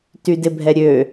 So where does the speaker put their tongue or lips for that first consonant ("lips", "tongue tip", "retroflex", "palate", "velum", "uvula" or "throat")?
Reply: tongue tip